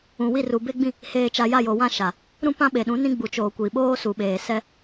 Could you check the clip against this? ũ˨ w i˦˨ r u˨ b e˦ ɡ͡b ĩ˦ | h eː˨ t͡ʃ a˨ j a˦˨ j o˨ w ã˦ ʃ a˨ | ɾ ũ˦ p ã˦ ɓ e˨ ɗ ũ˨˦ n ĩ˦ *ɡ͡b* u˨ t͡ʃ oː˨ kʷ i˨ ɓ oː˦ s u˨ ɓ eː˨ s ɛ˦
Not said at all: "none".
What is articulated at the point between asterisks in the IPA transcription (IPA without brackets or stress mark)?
ɡ͡b